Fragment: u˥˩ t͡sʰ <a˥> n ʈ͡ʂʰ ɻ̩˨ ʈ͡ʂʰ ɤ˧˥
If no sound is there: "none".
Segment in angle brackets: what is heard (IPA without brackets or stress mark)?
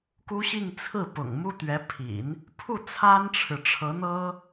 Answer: a˥